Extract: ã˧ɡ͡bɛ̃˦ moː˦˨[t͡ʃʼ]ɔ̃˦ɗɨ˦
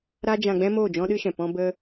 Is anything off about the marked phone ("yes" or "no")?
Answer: yes